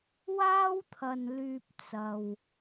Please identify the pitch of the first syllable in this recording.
high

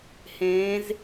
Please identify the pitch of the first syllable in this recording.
rising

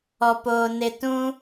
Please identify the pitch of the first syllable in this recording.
low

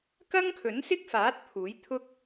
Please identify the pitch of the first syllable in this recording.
high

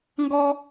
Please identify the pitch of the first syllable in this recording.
high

